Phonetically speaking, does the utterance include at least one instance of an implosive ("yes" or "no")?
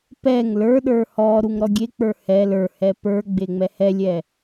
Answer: yes